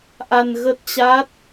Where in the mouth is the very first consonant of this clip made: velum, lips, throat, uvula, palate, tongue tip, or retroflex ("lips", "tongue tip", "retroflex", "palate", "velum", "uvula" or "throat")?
throat